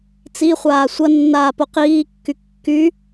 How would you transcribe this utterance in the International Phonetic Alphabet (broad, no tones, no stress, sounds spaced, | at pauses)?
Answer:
t͡s i χʷ aː sʷ ɐ nː aː p o q iː kː y kː y